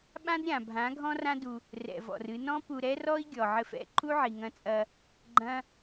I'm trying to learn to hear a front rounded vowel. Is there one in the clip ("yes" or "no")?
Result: no